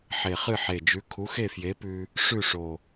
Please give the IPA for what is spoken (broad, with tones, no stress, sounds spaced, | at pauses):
ħ e˨˩ χ ɨ˥˨ ħ e˨˩ d͡ʒ ʉ˨˥ kʰ u˨˥ x e˥˨ f j e˨˥ p ʉ˧ | ʂ ʉ˥˨ ʂ o˨˩